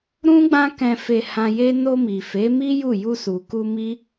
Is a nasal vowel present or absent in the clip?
present